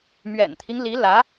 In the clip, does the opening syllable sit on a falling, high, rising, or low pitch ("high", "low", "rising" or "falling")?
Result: low